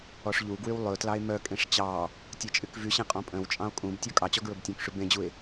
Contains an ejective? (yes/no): yes